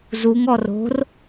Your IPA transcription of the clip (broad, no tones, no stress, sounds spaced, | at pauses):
z u ŋ ɔ r o̤ r